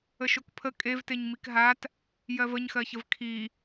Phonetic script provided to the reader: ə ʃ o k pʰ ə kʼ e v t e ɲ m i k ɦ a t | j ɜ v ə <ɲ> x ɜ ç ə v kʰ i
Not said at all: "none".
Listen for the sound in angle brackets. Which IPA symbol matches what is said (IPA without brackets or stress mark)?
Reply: ɲ